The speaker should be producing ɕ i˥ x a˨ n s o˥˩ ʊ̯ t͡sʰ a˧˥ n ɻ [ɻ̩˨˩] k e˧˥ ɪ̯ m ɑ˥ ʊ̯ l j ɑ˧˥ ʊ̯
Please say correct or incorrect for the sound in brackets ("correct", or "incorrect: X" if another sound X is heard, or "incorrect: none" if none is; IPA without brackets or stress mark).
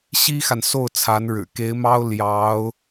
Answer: correct